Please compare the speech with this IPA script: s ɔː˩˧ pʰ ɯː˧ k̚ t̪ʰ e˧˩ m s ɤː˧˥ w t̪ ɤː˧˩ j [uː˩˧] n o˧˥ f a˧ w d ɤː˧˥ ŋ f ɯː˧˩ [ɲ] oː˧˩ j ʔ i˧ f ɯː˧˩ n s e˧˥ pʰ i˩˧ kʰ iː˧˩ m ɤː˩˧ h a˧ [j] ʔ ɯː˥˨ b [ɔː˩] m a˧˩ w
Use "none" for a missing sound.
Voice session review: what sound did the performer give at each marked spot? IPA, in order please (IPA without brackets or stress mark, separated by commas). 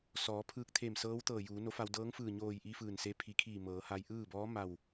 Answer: uː˩˧, ɲ, j, ɔː˧˥